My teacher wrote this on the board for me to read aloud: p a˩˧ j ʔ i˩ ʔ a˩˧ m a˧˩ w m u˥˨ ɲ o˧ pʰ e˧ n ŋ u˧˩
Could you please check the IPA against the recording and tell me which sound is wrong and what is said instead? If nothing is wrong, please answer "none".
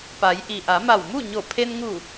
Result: o˧ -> o˧˩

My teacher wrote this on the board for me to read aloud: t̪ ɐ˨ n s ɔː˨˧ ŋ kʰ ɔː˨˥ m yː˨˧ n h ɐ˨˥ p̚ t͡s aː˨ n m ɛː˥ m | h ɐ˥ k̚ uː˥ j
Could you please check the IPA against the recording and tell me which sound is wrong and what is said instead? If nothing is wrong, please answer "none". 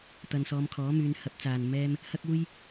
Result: ŋ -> m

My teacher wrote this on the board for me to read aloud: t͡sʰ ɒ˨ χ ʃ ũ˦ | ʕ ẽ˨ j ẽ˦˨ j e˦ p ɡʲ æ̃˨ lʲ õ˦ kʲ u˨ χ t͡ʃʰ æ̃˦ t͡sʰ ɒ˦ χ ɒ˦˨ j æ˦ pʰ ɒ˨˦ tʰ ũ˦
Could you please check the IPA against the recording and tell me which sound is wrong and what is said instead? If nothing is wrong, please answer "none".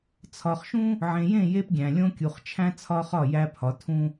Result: none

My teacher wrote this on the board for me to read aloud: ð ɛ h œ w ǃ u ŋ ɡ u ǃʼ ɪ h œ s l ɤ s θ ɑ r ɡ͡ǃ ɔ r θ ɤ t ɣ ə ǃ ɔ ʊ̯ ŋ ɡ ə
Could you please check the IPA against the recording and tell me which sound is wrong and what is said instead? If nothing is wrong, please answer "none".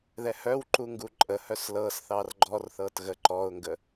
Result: ɪ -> ə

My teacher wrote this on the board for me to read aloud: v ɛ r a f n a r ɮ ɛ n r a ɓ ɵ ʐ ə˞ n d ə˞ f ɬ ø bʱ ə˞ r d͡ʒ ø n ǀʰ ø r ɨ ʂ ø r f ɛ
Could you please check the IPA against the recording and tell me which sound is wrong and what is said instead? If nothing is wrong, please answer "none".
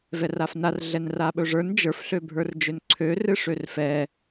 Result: d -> d͡ʒ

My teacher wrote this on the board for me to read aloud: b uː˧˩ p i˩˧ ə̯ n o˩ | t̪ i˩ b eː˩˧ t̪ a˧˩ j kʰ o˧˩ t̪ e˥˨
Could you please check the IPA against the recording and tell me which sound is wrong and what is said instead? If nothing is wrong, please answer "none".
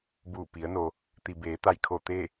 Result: none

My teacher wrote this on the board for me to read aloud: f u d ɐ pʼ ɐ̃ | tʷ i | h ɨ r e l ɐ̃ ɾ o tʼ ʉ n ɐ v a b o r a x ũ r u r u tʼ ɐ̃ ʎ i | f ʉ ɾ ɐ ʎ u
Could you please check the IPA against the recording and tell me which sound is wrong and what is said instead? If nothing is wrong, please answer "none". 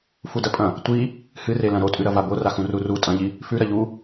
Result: n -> ɾ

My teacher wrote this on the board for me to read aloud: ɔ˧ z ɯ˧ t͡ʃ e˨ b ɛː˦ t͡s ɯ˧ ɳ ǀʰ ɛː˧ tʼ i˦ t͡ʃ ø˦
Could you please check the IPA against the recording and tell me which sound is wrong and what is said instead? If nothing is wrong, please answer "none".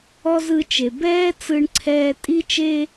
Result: ø˦ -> e˦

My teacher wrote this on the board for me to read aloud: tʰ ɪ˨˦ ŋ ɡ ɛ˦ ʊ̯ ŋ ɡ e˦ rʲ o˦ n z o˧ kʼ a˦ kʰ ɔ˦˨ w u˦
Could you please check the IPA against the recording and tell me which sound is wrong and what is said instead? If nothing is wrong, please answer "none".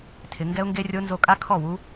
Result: none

